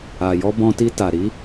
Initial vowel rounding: unrounded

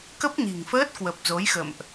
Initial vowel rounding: unrounded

